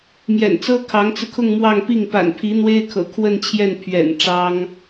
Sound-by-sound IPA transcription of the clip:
mjɛ̰˨˩nt͡sɤ˥ kʰɑ˧˥ŋt͡sɹ̩˧kʰʊ˥˧ŋ mwɑ˥˧ŋpi˥˩ŋ pa̰˨˩npʰi˧˥ n̪we˥ɪ̯kʰɤ̰˨˩ kʰwə˥˧nt͡ɕʰjɛ˥˩n pʰɥɛ̰˨˩n ʈ͡ʂɑ˥ŋ

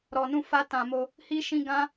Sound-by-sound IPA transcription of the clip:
ɾɔ˧nũ˦fa˦tã˧ mo˧ | hi˦ʃĩ˦ ɡã˦

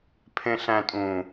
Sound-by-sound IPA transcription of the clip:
pʰẽɬæ̃tʼũ

